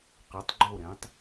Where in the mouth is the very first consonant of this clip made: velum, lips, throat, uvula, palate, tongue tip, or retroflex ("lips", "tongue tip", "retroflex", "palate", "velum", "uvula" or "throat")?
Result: uvula